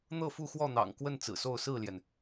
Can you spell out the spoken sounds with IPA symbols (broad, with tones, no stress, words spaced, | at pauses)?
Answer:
n̪ɤ˥˨fu˥˨xwɔ˥˨ n̪ɑ̰˨˩ŋ kwə˥˨n t͡sɹ̩˨˩so˥˨ʊ̯ sɹ̩˥˨ljɛ˩n